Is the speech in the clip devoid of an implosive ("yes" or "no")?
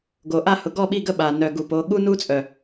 no